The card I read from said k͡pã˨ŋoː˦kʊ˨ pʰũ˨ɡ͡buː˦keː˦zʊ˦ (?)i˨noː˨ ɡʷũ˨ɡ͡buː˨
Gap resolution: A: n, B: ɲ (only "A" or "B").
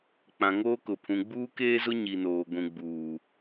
B